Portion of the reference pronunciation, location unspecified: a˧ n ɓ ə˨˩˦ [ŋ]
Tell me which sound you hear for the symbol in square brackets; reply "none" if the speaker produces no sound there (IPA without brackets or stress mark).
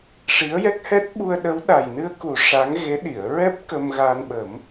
m